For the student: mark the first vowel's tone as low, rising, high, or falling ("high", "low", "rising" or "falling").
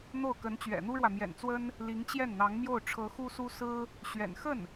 falling